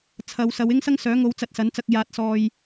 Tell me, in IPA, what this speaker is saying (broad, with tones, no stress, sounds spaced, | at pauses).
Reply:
t͡sʰ ɐ˨˧ w s ɐ˨˧ w ɪ˥ ŋ s ɐ˥ ŋ s œː˨˥ ŋ o˨˧ w t͡s ɐ˧ t̚ s ɐ˨˥ n t͡s ɐ˧ k̚ j aː˨ t̚ s ɔː˨ j